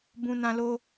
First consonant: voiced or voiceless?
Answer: voiced